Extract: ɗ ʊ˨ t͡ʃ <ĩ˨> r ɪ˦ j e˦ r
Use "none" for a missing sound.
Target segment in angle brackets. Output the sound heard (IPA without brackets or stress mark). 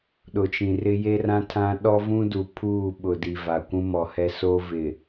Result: ĩ˨